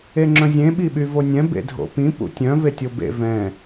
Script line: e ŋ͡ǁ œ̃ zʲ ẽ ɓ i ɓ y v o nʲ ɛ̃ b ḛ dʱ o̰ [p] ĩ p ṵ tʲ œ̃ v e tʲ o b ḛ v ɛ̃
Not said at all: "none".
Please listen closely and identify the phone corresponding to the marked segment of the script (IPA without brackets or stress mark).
p